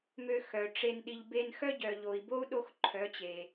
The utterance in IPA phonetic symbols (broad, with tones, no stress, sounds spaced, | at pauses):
m ø˧ x œ˨ ʈ͡ʂ e˧ n ɗ i˨ ʎ b e˧ n x œ˦ ɟ œ˨ ʎ o˨ i̯ b o˦ u̯ ɗ o˦ x ǃʰ œ˨˦ t͡ɕ e˨